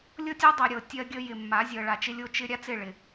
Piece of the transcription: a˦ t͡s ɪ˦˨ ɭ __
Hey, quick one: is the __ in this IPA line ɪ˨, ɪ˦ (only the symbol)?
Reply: ɪ˨